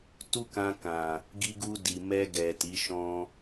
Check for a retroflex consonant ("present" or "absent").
absent